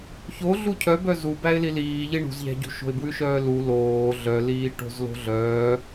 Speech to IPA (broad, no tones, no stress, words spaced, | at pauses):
çoɮu cʰœbœ zu bæɪ̯liliː ʎiɳṳzʎæ̤ɟṳ ʃo̤ɪ̯bwʉʃœːlu loː ɮœliː ʈo̤zlo̤ɮœː